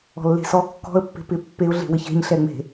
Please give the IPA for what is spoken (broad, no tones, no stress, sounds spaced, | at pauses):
ɔ̤ lː e̤ s ɔ kː ɔ̤ ə̯ pː e̤ p ɪ pː e ʊ̯ ɮ e̤ w ɪ ç e̤ ɲ ɬ ɛ ŋ͡m e̤